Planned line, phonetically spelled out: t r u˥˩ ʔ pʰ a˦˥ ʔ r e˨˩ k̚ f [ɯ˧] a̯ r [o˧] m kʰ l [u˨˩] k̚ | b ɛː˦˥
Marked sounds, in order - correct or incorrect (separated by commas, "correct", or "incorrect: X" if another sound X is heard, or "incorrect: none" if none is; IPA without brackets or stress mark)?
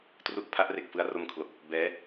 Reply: incorrect: ɯ˦˥, correct, incorrect: o˨˩